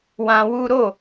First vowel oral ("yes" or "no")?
no